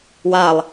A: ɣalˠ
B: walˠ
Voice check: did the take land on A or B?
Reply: B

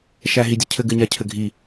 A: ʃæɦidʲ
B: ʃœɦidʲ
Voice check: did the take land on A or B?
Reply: A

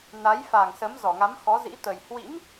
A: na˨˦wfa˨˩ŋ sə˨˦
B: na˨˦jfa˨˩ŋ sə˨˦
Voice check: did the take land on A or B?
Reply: B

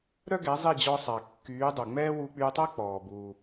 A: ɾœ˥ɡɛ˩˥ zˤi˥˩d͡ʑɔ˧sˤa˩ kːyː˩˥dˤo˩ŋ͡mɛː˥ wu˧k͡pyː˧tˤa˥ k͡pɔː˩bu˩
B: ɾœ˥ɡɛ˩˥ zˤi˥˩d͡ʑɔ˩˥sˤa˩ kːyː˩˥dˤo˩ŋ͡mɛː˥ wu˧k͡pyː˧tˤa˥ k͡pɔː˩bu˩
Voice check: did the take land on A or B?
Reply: A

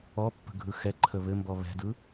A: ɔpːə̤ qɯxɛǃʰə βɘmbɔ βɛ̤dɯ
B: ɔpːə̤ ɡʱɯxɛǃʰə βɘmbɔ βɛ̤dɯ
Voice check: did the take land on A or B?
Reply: B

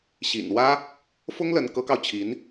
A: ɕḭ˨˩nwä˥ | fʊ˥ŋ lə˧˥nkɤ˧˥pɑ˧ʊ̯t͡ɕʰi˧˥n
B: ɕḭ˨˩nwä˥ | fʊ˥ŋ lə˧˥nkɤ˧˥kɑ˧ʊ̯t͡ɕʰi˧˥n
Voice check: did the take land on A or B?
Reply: B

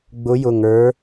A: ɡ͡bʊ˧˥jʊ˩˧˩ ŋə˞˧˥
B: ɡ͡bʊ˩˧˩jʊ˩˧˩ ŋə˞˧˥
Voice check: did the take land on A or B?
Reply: A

